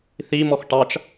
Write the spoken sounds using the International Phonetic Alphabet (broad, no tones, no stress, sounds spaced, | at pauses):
θ i m ɔ x ʈ ɑ t͡ʃ